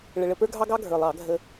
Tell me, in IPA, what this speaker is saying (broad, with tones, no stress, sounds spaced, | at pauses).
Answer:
ɭ ə˧ ɭ ə˧ p ə˞˥ ɡʱ ɑ˥ ɡ ɑ˥ ɡʱ ə˞˨˩ lˠ ɑ˧˩˧ ɡʱ ə˧